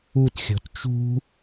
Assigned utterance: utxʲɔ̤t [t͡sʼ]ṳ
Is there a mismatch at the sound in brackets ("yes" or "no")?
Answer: yes